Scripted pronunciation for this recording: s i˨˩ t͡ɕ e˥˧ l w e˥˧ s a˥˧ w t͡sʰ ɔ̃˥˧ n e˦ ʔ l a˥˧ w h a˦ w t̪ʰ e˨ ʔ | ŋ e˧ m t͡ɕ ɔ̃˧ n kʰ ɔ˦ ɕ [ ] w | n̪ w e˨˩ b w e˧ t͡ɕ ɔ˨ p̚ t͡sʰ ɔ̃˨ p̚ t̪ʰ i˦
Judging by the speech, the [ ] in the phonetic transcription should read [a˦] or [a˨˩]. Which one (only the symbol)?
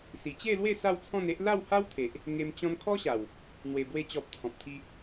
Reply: a˨˩